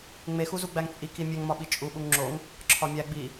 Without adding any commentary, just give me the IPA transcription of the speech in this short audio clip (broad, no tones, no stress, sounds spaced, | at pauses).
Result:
ŋ͡m e x u z u ɡ͡b æ ŋ t͡sʼ i k i mʲ e ŋ m ɒ ɓ i t͡ʃʼ u ɓ u ŋ ŋ͡ǁ o ŋ | ǁʰ ɒ mʲ æ ɡ͡b i